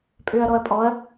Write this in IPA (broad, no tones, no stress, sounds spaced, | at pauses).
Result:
pʼ ø ɐ̯ ɾ ɔ ɐ̯ pʼ ɔ ɐ̯